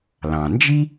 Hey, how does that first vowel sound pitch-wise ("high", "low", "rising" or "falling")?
low